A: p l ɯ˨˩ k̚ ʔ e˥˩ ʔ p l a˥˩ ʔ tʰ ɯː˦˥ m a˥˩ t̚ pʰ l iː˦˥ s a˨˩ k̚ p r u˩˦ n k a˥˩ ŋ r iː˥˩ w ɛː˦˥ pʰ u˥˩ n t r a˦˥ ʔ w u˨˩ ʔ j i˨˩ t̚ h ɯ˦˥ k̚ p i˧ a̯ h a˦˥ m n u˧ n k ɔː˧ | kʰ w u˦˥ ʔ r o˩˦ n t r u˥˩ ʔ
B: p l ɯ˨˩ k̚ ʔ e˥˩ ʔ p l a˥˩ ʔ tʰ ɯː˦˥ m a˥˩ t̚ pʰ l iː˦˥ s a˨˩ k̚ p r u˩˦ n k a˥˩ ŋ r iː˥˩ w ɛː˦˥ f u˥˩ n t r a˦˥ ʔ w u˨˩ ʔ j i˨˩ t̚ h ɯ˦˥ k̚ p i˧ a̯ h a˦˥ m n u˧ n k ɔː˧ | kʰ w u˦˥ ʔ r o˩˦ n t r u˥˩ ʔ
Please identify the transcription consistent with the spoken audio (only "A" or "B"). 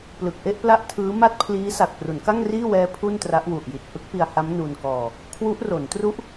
A